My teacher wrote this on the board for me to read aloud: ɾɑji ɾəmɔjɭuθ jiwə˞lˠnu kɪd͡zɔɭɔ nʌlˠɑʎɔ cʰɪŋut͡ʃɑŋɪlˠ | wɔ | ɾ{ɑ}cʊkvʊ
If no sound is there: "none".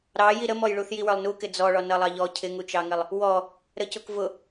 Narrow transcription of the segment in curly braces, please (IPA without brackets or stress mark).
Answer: ə